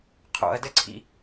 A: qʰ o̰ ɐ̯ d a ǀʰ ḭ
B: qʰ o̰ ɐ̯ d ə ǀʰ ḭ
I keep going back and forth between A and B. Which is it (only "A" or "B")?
B